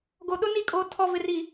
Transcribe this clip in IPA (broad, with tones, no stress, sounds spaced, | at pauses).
ɡ o˨ ɗ ʊ˦ n i˦˨ kʼ o˨ tʰ ɔ˨ v ɪ˨ r i˨